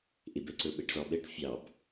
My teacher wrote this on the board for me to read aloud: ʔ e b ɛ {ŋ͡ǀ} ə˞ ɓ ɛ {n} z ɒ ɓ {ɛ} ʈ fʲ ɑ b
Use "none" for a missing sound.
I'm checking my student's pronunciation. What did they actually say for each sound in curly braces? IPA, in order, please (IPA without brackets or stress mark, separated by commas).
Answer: ǀ, ʈ, ɛ